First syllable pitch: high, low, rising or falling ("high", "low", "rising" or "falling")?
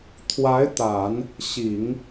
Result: rising